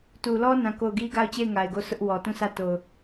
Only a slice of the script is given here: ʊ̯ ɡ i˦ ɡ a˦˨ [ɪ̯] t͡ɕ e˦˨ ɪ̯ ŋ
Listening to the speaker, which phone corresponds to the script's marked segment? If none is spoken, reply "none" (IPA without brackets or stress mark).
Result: ʊ̯